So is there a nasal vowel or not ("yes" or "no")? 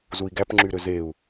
no